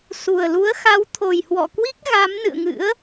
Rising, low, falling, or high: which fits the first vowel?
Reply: low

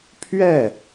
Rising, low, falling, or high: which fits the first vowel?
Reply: falling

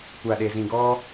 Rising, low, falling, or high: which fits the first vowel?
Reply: low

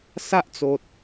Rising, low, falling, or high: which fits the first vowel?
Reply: high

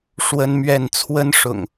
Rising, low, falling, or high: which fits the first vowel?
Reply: high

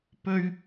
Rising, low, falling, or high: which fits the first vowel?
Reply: high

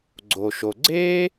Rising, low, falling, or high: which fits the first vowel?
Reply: low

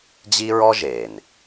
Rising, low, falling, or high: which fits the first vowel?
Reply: high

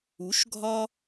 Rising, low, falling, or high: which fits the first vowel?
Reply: rising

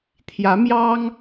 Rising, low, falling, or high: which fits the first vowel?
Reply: rising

